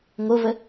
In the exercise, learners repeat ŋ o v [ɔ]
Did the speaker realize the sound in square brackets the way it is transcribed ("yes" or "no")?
no